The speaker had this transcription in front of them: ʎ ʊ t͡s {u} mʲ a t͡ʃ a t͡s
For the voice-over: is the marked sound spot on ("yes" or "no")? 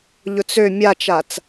no